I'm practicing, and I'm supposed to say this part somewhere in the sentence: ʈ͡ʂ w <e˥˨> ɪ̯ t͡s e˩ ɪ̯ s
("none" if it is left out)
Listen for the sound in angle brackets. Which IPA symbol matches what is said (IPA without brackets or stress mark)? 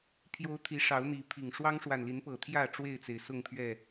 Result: e˥˨